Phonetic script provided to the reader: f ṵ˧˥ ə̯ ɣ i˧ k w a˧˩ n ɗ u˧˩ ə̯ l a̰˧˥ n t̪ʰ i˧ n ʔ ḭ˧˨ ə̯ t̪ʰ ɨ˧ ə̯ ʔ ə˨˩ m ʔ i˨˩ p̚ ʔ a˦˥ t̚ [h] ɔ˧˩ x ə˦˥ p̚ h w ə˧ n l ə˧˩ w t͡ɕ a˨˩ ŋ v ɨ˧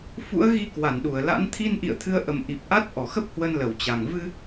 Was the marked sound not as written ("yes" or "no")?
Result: yes